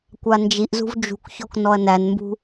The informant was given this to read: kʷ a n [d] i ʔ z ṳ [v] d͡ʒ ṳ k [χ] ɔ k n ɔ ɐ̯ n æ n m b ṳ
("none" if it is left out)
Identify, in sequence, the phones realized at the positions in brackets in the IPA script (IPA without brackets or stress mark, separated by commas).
d͡ʒ, v, ç